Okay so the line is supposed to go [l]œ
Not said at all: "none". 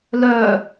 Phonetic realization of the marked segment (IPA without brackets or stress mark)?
l